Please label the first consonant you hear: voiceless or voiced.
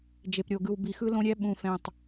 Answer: voiced